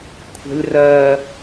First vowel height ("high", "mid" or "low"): mid